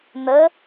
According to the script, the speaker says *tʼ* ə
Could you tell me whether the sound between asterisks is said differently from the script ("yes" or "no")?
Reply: yes